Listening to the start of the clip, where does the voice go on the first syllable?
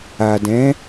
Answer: low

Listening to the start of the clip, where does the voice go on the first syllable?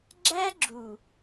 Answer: high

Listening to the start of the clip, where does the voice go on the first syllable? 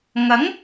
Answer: rising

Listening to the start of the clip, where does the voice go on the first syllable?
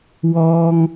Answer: high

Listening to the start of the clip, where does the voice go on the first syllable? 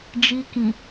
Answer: high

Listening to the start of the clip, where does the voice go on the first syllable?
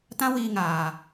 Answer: high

